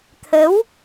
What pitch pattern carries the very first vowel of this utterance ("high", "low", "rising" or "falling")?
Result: rising